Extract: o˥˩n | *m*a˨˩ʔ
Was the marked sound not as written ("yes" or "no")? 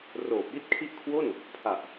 yes